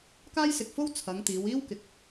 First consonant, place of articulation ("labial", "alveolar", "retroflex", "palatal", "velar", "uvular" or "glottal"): velar